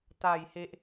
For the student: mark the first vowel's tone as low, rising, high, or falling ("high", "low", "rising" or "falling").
low